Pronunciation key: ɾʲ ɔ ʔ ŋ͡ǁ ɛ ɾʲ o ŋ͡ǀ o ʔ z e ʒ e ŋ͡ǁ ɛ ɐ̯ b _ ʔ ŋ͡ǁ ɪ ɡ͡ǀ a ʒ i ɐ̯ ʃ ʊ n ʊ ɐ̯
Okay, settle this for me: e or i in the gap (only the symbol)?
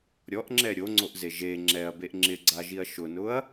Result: e